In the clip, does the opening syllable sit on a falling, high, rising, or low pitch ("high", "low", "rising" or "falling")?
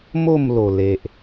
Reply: falling